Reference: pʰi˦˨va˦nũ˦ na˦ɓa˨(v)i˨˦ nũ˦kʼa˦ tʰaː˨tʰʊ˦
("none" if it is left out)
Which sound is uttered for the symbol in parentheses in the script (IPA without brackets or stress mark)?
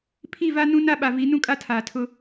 v